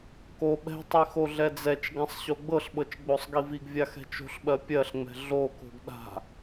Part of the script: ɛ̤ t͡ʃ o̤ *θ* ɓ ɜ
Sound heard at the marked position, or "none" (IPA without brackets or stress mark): ɬ